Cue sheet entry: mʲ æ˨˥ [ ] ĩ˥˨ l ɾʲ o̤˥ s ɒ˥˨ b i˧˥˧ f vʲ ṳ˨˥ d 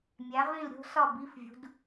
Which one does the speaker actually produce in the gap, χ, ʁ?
ʁ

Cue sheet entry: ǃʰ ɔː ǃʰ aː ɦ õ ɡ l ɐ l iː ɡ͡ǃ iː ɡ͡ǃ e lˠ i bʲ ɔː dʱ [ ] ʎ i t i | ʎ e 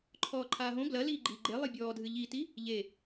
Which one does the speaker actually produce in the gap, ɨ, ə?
ɨ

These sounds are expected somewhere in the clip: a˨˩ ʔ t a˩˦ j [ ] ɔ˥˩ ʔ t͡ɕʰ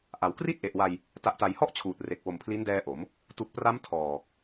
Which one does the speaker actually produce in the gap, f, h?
h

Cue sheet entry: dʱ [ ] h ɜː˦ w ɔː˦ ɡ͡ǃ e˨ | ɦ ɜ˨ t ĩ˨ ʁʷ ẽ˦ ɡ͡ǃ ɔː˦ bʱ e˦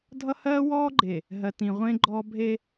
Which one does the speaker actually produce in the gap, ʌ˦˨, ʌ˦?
ʌ˦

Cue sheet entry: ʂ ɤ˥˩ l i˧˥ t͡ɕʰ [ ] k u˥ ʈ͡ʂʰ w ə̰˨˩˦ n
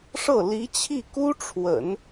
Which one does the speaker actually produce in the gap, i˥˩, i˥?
i˥˩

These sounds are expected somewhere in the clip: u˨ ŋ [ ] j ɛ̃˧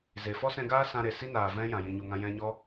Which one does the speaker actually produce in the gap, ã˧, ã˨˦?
ã˧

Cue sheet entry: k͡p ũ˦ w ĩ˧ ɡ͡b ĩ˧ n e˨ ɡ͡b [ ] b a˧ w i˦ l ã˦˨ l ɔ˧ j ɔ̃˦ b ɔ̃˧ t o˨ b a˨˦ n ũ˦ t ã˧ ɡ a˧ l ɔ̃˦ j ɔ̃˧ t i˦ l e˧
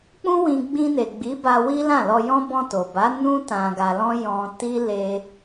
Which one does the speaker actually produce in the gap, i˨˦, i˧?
i˨˦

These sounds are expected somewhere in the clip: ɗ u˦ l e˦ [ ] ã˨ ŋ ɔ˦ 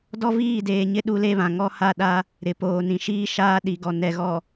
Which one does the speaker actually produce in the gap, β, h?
β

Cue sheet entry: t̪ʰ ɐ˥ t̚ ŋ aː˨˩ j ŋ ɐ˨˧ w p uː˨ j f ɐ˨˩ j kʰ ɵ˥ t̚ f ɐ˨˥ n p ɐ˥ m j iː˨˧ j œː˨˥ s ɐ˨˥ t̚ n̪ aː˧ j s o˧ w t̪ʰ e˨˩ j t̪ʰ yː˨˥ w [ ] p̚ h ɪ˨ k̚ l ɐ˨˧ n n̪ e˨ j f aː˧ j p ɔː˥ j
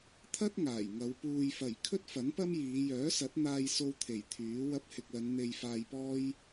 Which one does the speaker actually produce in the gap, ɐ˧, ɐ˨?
ɐ˧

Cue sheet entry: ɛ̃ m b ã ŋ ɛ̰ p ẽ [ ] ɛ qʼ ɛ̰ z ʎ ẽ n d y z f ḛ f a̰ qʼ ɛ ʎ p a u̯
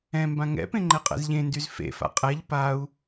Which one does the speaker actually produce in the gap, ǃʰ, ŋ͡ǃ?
ŋ͡ǃ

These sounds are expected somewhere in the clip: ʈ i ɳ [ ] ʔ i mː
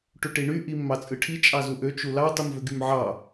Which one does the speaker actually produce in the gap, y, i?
y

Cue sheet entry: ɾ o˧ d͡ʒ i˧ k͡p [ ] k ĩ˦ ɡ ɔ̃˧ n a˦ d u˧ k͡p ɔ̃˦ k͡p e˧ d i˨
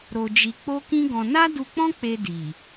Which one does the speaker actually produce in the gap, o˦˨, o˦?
o˦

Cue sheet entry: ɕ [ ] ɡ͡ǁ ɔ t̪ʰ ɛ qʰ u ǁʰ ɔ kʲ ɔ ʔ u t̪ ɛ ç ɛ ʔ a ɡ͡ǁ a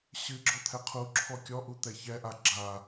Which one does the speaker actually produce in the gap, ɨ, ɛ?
ɨ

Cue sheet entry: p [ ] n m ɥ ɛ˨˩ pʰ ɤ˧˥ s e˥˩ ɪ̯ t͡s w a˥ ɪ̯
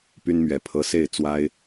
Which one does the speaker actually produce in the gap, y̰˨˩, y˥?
y˥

